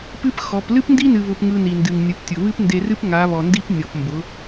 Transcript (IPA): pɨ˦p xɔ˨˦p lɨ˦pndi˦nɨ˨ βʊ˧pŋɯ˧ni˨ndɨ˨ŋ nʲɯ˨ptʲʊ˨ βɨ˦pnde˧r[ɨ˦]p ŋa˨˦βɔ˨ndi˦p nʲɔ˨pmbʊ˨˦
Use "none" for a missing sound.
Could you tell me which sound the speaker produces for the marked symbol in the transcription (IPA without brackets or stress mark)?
ɨ˦